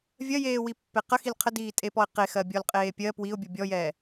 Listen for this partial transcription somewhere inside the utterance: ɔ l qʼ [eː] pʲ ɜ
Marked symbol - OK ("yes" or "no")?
yes